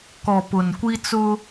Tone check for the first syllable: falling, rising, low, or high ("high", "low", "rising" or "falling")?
low